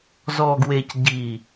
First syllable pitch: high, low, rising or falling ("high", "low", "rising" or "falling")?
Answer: low